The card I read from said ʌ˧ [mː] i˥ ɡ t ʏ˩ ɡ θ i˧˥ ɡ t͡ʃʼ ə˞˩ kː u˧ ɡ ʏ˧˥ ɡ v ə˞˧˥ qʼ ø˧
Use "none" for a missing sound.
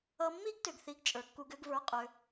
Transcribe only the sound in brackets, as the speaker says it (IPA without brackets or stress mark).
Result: mː